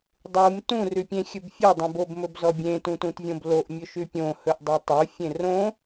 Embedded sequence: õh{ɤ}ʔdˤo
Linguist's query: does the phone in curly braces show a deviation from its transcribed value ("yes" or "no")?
yes